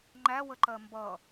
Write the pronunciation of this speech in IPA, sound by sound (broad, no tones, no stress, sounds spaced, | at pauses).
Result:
ŋ͡ǃ æ w ə ǃ ɜ m b ʌ